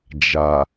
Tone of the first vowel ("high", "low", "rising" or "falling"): low